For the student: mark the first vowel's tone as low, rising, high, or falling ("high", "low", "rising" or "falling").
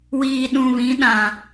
low